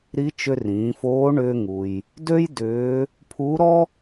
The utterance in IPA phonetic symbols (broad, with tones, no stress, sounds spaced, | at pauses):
ɾ i˧˥ t͡ʃ ʏ˧ r ĩː˩˧ f oː˧˥ ɳ ʏː˧ ŋ u˩ j | d ø˥ j d ʏː˧˥ | pʰ uː˧˥ ɾ ɔ˥